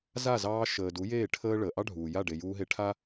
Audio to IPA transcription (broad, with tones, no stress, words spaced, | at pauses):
za˦˨zɑː˧ ʃəː˨ du˨˦jeː˦˨ ʈʰəː˦ ɭəː˨ ʔɑ˦ɖʱuː˨ja˦˨ ɖe˨juː˧ɦe˧ ʈʰa˦